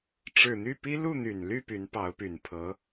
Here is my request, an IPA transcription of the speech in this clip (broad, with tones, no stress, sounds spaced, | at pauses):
ʈ͡ʂ ɻ̩˨˩ n̪ y˥˩ p i˥ l u˥˩ n̪ y˨˩ n l y˥˩ p y˧˥ n p ɑ˧˥ ʊ̯ p y˨˩ n pʰ ɤ˧˥